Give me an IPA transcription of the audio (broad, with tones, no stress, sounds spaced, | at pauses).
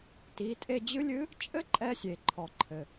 t i˩˧ tʼ e˧ d͡ʑ ɨ˧˥ lʲ ɨ˧˥ | t͡ʃʼ ɘ˥ ǃʼ ɛ˧ sʲ e˩ ǃʰ ɔ˩ ǃʰ ɘ˩